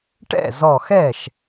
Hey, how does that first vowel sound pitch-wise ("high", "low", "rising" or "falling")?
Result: falling